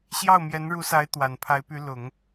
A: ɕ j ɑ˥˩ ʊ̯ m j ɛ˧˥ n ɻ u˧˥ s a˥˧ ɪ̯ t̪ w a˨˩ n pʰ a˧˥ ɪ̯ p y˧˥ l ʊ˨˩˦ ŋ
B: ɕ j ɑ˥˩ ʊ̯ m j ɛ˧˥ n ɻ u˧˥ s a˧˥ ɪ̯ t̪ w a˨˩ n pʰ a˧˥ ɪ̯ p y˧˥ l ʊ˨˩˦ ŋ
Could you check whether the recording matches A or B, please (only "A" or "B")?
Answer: B